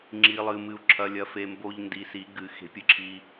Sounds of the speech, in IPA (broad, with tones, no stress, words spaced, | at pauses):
ŋ͡ǁiː˨lˠɨː˨mɨ˨u̯ ǁʰɐ˨lʲɐ˨fe˨ mbo˨ʎ ndi˨si˨˩˦ɡɨ˨˩˦ xe̤˨˩˦pʲɨ˨ǁʰiː˨